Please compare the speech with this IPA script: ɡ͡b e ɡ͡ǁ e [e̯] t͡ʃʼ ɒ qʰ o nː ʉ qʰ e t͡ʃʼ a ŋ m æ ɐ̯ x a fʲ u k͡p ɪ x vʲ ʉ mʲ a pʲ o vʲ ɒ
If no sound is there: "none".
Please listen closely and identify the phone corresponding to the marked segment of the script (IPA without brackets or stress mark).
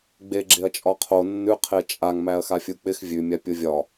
ɐ̯